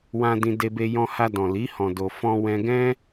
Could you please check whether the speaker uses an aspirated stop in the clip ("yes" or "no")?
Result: no